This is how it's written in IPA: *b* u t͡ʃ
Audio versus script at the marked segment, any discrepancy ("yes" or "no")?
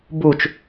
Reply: no